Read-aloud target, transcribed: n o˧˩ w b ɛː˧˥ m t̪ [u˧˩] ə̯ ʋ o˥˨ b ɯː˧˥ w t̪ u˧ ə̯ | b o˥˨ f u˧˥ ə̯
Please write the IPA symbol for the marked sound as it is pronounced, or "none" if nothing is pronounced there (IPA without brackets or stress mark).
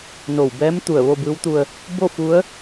u˧˩